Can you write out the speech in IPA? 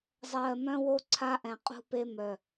zˤ ɜː˨ m œ̃˦ w o˦ ǀʰ a˦ ʔ ɛ̃˨ qʼ ṳ˦ p e˦ m œ˨

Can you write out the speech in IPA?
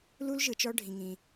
l u˦ l ʒ ɯ˨ t͡ʃ ɔ˦ ɖʱ ĩ˦ ŋ ĩ˦

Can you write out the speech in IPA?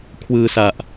kʰ w ɯː˧ s a˨˩ ʔ

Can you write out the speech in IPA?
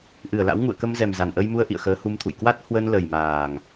ʔ ɨ˧˩ ə̯ l a̰˧˥ w ŋ ṵ˧˨ ə̯ k ə˧ m z ɛ˨˩ m z a˨˩ n ʔ ə˧ j m u˧ ə̯ ʔ ḭ˧˨ ə̯ x əː˨˦ h u˧ m t̪ʰ ṵ˧˨ j k w a˦˥ t̚ h w ə˧ n l ə˨˩ j m aː˨˩ ŋ

